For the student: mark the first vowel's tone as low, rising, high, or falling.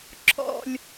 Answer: low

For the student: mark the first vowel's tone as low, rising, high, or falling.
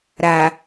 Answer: low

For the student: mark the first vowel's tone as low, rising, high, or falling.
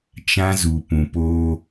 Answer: high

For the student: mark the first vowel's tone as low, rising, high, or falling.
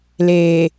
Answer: low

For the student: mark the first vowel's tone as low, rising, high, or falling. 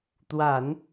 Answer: low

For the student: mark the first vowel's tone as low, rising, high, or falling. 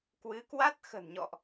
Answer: rising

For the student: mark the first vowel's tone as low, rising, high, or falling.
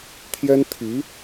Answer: high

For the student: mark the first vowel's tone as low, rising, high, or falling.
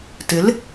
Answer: rising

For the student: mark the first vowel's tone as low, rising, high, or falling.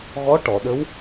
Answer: rising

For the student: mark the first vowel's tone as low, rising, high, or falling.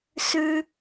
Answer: high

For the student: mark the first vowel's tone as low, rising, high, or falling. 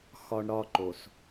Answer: high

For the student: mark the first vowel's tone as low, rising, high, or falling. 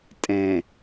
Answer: low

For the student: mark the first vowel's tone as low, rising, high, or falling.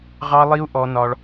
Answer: high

